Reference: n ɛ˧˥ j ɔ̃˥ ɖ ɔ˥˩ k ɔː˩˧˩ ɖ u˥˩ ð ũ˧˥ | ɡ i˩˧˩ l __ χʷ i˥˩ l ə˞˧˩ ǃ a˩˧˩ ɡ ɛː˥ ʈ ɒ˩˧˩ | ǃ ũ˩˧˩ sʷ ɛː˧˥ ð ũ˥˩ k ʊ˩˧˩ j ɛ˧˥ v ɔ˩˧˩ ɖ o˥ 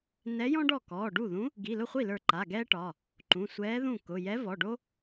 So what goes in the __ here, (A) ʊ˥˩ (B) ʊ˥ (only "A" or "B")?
A